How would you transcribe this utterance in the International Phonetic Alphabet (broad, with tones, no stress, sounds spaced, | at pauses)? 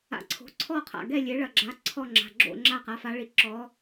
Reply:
a̰˨˥ ǀʰ o̤˩˧˩ ǀʰ ɔ˥˨ qʰ a̰˩˧˩ ɡ ɛ˥˨ lʲ e˨˥ ɭ ɐ˩˧˩ ɡ͡ǁ a˨˥ ǀʰ ɔ˥˨ ŋ͡ǁ a̤˩˧˩ ɡ͡ǁ o̰˥˨ ŋ͡ǁ a˥˨ q a˩˧˩ f a˨˥ ɭ i˨˥ ǁ ɔ˨˥